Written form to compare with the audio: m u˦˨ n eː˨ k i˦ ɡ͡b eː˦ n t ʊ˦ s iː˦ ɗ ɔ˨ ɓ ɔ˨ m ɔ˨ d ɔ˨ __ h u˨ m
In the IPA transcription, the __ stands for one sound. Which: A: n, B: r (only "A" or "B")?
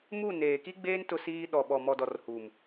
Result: B